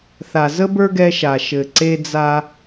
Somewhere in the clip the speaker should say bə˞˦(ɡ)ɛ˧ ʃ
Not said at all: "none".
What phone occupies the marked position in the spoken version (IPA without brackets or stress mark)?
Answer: ɡ